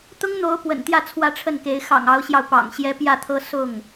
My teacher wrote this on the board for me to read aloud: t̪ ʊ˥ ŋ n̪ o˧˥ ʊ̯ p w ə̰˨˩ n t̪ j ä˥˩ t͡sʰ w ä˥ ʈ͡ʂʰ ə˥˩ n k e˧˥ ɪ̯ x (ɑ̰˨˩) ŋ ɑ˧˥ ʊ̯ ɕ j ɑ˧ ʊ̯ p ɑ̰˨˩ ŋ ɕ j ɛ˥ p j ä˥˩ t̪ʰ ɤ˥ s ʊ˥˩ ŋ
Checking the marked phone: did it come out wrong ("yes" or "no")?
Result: no